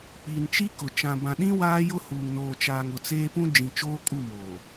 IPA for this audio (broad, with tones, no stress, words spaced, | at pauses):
k͡piː˨n t͡ʃi˦kʊ˨ t͡ʃã˨bã˨ɗĩ˦ waː˦jʊ˦huː˨ŋ noː˨t͡ʃaː˨ŋ ʊ˨t͡seː˦ pũ˦ d͡ʒĩ˨ t͡ʃoː˦kʼu˦˨moː˨